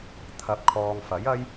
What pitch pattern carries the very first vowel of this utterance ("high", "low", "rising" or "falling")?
rising